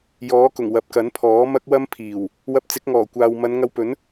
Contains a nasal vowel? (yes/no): no